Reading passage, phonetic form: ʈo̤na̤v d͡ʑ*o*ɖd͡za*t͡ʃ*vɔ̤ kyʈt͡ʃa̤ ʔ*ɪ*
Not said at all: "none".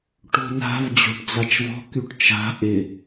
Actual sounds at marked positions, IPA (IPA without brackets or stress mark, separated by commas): o̤, t͡ʃ, ɪ